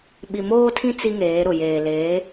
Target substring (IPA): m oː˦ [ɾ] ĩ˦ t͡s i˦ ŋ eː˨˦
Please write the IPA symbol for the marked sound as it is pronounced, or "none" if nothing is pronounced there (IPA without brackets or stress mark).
tʰ